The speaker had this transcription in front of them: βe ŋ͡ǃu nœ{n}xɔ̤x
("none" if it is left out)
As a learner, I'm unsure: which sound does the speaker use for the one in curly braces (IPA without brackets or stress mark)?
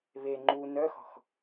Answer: none